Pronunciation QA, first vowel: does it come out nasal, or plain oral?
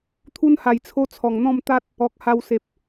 oral